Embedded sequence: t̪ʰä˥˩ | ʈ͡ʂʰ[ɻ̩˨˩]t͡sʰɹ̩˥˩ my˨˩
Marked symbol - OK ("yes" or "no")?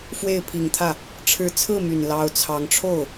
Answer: no